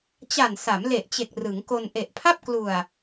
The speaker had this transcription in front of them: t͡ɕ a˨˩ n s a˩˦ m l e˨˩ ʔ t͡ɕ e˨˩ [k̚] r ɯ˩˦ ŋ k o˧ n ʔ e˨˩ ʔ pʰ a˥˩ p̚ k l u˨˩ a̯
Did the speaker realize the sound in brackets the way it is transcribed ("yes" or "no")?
yes